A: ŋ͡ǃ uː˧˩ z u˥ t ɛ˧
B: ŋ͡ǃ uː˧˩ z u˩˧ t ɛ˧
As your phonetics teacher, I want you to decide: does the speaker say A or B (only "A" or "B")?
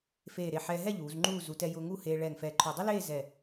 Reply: B